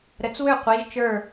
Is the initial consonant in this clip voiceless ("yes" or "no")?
no